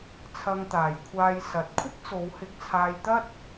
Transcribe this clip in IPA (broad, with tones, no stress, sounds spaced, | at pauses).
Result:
t͡sʰ ɐ˧ ŋ t̪ aː˨ j kʷʰ aː˧ j s ɐ˨ t̚ kʷʰ ɪ˥ k̚ t͡s o˨˧ w h ɪ˧ k̚ t͡sʰ aː˧ j t̪ ɐ˥ t̚